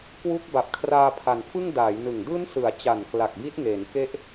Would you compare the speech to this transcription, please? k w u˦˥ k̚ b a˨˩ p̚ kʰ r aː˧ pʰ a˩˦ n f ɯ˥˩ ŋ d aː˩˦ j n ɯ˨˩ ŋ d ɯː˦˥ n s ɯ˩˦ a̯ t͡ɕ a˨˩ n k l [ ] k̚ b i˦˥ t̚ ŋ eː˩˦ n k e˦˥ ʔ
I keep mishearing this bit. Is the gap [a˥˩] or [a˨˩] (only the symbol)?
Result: a˨˩